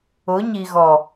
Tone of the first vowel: rising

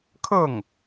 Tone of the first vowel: falling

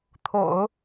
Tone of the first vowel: low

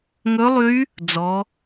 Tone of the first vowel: rising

